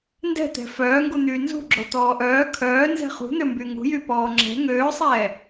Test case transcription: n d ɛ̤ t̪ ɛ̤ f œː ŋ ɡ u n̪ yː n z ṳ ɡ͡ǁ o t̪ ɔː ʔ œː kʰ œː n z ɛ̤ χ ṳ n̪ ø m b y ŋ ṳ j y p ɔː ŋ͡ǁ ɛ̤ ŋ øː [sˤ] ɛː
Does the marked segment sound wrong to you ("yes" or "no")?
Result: no